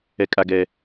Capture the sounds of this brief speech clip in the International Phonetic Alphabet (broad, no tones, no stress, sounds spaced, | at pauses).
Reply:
ɛ kʼ a ɡ ɛː